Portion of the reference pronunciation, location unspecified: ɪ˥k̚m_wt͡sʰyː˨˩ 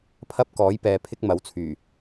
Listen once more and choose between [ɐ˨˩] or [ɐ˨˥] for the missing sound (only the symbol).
ɐ˨˥